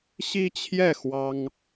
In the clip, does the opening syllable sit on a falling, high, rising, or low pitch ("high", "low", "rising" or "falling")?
high